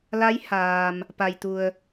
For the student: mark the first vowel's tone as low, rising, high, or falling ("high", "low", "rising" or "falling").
rising